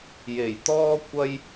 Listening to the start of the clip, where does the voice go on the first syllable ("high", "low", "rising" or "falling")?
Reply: low